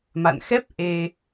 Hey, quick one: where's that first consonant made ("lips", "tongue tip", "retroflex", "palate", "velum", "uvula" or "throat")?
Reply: lips